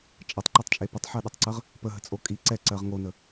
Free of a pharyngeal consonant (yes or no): no